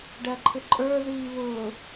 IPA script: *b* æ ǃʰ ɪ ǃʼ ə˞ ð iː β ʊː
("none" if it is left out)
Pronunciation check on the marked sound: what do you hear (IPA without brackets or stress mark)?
ɖ